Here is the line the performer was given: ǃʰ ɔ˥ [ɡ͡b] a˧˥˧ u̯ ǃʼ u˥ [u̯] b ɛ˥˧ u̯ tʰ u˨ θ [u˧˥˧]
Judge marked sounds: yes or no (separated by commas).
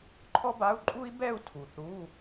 no, no, yes